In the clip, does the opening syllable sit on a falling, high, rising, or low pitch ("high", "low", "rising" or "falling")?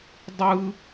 high